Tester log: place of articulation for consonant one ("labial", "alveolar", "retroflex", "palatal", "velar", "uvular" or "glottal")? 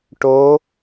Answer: retroflex